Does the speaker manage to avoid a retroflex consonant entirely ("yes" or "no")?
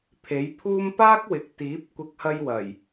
yes